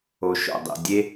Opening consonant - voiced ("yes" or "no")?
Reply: no